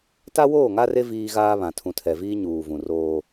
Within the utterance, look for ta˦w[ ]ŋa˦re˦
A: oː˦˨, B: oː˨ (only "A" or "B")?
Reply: A